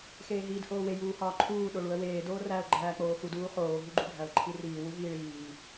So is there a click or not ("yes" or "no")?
yes